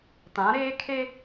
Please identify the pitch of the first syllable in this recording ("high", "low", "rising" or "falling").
rising